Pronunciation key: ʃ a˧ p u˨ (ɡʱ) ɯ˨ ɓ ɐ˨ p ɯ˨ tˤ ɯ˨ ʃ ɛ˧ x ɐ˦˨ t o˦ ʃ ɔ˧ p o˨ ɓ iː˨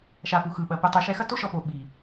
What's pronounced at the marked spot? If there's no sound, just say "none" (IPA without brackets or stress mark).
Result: x